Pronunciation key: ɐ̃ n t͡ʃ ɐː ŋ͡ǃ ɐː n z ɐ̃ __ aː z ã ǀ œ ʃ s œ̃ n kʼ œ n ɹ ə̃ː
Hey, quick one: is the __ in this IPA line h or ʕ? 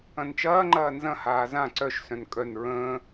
h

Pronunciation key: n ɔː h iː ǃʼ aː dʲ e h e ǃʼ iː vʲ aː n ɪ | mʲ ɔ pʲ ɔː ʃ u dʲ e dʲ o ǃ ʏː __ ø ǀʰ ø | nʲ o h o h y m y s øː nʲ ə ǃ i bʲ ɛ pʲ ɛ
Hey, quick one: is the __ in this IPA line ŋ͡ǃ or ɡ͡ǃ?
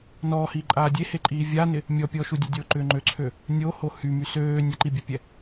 ŋ͡ǃ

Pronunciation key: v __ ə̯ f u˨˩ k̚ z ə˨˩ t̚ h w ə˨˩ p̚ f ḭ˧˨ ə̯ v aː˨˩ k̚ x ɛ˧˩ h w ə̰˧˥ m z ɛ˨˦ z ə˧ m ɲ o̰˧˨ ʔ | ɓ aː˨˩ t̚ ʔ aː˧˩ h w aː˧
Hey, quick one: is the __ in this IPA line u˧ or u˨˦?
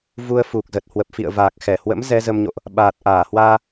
u˧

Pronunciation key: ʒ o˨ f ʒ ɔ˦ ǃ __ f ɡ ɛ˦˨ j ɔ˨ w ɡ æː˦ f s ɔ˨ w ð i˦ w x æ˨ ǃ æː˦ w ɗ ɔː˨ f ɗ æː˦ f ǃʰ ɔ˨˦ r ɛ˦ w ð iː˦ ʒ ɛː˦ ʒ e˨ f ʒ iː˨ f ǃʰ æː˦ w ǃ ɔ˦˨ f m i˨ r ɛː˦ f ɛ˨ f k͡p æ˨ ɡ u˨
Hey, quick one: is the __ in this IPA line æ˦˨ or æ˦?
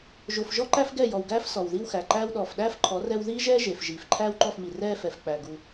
æ˦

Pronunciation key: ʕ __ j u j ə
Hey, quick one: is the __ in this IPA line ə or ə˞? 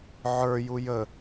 ə˞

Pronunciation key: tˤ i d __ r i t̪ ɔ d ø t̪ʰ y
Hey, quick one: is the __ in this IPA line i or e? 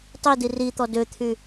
i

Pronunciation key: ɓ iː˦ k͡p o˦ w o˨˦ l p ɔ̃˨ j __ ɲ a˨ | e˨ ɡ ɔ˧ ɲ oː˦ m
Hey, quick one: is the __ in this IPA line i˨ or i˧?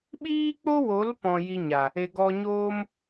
i˧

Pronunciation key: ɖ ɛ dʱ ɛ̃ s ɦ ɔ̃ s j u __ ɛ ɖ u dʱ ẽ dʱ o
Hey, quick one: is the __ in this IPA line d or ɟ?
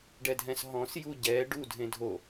ɟ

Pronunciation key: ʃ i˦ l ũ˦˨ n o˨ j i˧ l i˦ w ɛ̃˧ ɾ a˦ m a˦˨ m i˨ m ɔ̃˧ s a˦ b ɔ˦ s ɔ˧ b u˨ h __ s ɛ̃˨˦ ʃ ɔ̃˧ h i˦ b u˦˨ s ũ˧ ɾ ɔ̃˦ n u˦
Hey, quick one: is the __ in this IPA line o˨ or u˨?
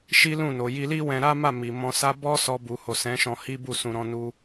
o˨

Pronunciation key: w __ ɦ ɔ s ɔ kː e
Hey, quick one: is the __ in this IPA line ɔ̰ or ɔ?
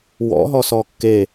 ɔ̰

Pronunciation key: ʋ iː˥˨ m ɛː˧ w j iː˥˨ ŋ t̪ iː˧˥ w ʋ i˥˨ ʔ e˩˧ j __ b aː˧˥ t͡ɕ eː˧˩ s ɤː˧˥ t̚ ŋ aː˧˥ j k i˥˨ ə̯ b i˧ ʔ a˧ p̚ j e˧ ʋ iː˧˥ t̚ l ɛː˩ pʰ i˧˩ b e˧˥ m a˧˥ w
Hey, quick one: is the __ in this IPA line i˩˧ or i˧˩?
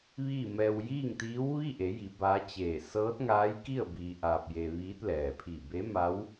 i˩˧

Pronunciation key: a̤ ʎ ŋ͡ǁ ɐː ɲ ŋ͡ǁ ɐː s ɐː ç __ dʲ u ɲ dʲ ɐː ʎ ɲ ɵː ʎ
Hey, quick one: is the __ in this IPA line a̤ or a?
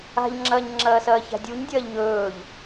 a̤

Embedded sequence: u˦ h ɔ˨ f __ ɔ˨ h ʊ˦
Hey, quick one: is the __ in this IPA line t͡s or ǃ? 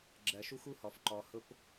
ǃ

